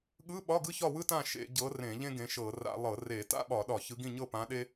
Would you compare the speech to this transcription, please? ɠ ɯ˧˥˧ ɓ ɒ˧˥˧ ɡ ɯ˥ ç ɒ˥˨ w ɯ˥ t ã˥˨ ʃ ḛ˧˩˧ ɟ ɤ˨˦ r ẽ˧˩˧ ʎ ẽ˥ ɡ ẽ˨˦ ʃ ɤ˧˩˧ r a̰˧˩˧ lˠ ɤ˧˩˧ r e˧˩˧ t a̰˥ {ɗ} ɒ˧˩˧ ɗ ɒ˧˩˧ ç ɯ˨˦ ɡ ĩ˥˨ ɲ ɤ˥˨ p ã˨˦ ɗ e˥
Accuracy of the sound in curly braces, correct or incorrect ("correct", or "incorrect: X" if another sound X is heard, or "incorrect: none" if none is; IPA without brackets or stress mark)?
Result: incorrect: ɓ